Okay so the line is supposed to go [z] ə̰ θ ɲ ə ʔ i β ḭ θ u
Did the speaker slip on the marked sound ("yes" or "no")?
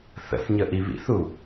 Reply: yes